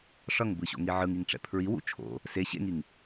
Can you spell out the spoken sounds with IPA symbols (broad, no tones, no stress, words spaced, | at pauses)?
ʂʌŋbɯɕo̰ŋi ʕɯŋiŋʈ͡ʂɛ̰ pʰɹiwṵ t͡ʃʰo̰ | se ɕḛŋiŋ